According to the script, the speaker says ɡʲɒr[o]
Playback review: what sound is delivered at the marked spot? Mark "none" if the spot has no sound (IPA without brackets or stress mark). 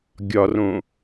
õ